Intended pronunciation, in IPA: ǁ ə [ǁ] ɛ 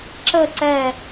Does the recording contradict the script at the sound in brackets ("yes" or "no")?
yes